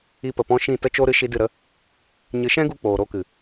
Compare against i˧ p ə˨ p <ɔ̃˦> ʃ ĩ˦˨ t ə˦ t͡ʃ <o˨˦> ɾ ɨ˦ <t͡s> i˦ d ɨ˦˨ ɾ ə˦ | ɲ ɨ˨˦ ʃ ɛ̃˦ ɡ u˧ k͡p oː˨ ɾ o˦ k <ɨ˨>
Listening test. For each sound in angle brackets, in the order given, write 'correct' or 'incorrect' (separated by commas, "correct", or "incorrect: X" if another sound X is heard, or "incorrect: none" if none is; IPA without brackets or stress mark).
incorrect: ɔ̃˧, incorrect: o˦, incorrect: ʃ, correct